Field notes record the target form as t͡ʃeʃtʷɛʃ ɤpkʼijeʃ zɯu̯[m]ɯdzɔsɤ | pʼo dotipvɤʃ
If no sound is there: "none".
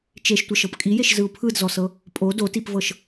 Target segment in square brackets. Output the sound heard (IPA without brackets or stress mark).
pʰ